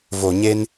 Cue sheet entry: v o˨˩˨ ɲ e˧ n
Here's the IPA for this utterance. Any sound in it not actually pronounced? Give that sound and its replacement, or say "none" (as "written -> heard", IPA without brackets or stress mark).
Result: none